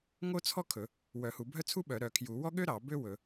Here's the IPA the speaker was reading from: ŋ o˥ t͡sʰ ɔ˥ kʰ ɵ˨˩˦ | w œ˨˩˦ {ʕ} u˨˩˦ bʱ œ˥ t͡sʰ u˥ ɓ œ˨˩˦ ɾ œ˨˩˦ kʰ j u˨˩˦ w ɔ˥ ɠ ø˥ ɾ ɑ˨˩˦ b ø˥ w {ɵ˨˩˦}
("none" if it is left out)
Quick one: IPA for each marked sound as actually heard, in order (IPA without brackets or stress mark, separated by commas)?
h, ɵ˨˩˦